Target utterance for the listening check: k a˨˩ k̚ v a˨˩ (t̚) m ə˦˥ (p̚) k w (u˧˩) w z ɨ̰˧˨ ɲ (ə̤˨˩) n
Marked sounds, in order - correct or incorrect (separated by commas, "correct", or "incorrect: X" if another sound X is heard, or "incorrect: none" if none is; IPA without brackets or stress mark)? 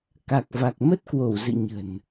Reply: incorrect: k̚, incorrect: t̚, incorrect: o˧˩, correct